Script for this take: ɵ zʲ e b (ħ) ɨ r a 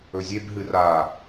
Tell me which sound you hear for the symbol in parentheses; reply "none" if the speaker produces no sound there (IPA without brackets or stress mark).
ɦ